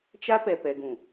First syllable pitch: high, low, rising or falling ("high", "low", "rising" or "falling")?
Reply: high